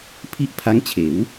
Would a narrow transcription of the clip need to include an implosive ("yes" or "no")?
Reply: no